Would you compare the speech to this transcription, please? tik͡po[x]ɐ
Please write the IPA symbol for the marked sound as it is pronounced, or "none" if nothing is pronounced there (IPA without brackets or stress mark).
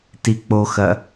x